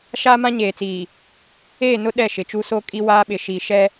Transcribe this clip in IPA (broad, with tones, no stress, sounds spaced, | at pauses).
ʃ aː˦ m ã˦ ɲ eː˨ t͡s iː˨ | eː˦˨ n ʊ˦ ɗ ɛ˦˨ ʃ ɪ˨ t͡ʃ u˦ s o˦ kʼ i˦ w aː˦ ɓ ɪ˨ ʃ i˨ ʃ ɛ˦